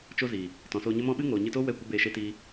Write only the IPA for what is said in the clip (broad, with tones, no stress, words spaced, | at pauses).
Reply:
t͡ʃo˦ziː˨ | tɔ̃˨soː˧ɲə˦mɔ̃˦ ɓɨ˦ŋoː˨ɲɨ˧toː˦ wɛ˦˨kʷə˦ beː˧ʃe˦ tiː˦